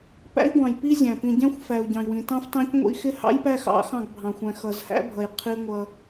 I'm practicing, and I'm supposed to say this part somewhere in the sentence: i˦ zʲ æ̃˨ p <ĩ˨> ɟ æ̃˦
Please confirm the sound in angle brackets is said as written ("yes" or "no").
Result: yes